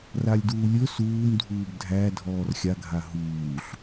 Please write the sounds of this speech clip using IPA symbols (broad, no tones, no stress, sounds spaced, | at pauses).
r a lʲ d uː lʲ ɵ s uː m dʱ uː b dʱ æ dʱ ɔː r xʲ a ɡʱ a ɦ uː ɬ